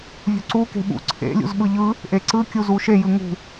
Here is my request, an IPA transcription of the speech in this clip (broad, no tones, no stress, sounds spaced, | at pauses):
vʲ ṳ ǀ u k e̤ ɓ ṵ ǀʰ ḛ lʲ ṵ z ɓ ɯ ʎ ɯ | ʔ e ǀ ɯ kʲ u z u ʃ e j ɯ ŋ ṳ